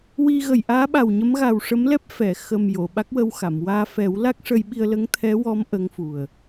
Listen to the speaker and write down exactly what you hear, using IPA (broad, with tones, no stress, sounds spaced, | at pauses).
w i˧ ɣ ə˨˩ j ʔ aː˧˥ ɓ a˨˩ w ɲ ə˧˥ m ɣ a˨˩ w ʂ ə˧˥ m l ɛ˦˥ p̚ f ɛ˨˩˨ x ə˨˩ m j o˨˩˨ ɓ a˦˥ k̚ w ə˧ w x a˨˩˨ m w aː˧ f ɛ˨˩˦ w l a˦˥ k̚ ʂ ə˧ j ɓ i˧ ə̯ l ə˧˥ ŋ t̪ʰ ɛ˧˥ w ɔ˧˥ m ʔ ə˧˥ ŋ f u˨˩ ə̯